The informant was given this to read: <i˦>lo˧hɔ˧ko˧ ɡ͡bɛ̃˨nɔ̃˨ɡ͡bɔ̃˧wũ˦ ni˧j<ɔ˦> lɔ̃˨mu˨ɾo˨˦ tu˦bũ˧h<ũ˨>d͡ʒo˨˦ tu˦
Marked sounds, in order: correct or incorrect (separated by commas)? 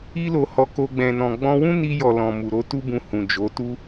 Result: correct, incorrect, correct